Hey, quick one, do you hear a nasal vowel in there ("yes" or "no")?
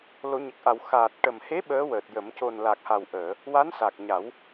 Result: no